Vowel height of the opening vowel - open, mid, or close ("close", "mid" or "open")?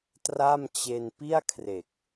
open